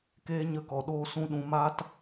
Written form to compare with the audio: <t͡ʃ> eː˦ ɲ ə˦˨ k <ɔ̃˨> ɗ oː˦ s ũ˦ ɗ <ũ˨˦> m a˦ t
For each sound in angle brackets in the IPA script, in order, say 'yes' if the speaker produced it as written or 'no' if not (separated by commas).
no, no, yes